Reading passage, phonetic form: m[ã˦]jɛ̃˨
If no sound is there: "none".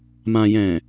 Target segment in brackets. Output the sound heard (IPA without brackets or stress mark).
ã˨